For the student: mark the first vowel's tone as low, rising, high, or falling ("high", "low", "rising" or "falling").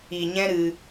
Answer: low